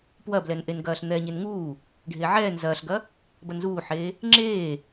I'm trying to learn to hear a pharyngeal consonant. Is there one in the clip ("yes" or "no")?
yes